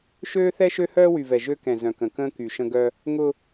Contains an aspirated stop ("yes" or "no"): no